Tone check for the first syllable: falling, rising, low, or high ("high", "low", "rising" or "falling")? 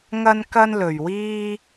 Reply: high